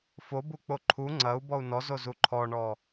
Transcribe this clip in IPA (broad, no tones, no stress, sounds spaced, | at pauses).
f o b u k͡p o ǃʰ u ŋ͡ǀ ɐ u̯ b ɔ u̯ n ɔ z o z u ǃʰ ɔ ɳ ɔ